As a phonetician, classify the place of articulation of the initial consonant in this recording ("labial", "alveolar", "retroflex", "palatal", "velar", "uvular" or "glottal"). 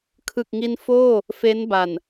velar